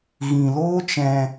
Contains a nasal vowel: yes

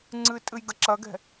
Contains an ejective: yes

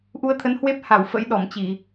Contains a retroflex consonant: no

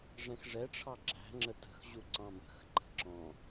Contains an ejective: no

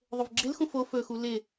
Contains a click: yes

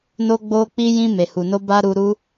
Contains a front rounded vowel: no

